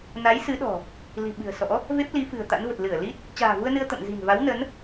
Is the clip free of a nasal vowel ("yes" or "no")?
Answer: yes